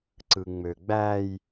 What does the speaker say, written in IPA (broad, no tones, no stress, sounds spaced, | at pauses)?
ǀ ɯ ŋ͡m ø ɡ͡b æ j